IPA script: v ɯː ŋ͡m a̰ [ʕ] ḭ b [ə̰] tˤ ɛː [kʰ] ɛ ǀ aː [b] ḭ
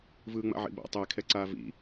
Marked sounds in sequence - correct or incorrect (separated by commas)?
correct, incorrect, correct, incorrect